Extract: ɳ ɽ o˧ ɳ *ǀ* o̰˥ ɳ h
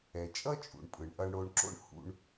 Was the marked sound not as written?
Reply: yes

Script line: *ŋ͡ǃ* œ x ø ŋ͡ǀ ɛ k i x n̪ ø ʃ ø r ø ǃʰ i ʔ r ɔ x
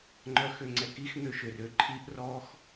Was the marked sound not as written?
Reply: no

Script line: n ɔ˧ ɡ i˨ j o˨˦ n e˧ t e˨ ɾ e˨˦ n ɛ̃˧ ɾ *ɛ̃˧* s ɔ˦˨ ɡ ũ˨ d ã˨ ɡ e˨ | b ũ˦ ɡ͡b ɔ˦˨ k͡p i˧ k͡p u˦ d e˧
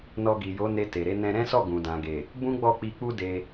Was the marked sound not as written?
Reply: yes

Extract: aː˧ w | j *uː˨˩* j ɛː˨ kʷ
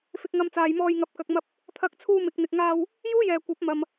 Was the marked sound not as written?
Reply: yes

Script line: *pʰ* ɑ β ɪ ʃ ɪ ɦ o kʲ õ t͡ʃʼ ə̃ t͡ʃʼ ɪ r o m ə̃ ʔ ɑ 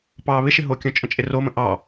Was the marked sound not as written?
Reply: yes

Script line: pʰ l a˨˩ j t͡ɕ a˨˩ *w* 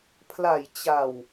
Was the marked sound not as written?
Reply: no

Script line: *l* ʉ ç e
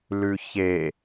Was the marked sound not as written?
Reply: no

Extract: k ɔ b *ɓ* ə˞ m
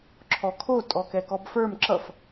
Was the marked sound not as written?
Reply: yes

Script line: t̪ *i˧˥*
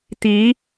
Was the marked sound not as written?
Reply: no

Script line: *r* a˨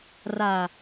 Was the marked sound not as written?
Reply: no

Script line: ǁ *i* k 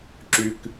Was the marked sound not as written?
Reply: yes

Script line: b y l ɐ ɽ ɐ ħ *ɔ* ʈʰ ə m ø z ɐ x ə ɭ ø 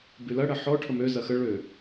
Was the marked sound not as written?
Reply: no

